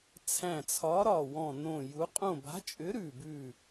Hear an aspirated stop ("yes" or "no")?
yes